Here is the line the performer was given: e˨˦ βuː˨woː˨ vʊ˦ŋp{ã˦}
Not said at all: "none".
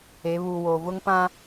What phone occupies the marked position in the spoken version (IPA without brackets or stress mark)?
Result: ã˦